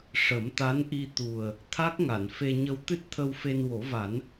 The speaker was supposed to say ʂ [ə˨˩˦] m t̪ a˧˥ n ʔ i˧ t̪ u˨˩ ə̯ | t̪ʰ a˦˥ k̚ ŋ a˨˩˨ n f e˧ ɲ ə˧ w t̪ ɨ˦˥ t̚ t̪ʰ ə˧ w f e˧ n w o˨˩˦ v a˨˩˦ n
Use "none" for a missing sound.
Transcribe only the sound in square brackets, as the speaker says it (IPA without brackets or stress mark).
ə˨˩˦